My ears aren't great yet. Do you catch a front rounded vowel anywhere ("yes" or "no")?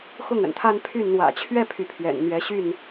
yes